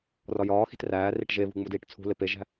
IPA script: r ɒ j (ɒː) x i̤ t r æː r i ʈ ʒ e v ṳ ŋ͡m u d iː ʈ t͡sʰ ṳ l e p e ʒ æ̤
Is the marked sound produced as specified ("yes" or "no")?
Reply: yes